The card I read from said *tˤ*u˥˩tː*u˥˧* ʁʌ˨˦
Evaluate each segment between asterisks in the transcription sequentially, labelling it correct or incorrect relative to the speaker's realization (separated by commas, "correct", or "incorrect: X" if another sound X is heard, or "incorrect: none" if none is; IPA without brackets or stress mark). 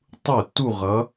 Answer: correct, correct